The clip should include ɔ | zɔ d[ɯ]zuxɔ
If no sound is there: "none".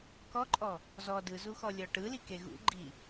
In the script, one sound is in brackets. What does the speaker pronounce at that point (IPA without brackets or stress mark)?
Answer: ɯ